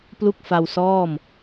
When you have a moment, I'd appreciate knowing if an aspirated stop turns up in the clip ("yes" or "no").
no